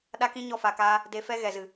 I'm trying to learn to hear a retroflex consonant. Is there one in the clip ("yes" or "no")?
no